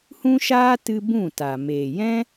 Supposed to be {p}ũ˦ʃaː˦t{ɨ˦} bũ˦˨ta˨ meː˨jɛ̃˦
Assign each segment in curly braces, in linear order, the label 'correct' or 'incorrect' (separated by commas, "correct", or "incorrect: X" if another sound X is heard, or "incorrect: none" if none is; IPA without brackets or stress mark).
incorrect: h, incorrect: ɨ˧